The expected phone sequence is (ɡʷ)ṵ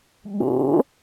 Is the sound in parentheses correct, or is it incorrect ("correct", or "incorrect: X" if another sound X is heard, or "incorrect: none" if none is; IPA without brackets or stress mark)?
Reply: incorrect: ɓ